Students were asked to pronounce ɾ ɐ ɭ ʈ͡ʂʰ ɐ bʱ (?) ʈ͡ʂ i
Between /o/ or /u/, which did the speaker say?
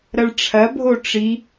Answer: o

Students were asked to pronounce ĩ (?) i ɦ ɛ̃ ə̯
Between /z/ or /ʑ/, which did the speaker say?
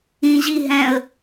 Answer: ʑ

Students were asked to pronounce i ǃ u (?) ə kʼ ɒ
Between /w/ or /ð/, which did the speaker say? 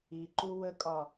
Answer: w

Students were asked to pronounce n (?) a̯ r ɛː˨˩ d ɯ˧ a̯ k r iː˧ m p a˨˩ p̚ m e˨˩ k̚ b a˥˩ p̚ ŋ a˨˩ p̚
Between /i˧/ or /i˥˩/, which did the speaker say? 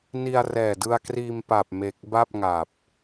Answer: i˧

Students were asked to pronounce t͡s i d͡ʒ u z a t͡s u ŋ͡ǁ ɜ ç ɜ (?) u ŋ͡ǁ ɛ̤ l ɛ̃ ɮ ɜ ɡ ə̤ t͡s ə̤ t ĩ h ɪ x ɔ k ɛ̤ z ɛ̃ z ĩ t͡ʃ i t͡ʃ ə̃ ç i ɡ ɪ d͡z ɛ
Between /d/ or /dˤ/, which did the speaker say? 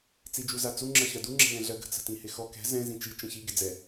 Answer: d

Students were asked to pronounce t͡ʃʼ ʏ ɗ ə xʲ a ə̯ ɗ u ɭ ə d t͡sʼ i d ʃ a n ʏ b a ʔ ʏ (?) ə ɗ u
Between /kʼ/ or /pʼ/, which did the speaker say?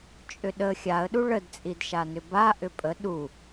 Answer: pʼ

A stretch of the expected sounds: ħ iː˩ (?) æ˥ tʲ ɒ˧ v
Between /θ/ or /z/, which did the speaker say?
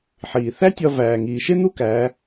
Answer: θ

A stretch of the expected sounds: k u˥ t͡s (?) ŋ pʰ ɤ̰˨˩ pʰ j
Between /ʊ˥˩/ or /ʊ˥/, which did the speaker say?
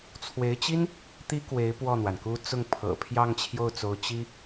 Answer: ʊ˥˩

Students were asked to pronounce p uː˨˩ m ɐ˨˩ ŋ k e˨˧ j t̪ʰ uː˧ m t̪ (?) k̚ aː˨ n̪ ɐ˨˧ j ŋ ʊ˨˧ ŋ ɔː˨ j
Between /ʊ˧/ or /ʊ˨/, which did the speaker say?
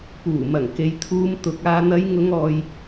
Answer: ʊ˧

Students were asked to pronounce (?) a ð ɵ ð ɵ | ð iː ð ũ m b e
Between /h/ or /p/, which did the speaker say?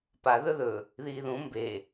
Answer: p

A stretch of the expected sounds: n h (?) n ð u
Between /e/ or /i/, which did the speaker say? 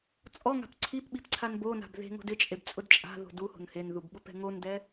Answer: e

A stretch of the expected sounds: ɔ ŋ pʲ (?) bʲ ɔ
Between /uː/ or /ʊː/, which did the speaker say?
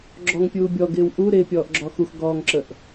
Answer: uː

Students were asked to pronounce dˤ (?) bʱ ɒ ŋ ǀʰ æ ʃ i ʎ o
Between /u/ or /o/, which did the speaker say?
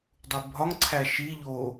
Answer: u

